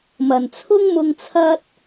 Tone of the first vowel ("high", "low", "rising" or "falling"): low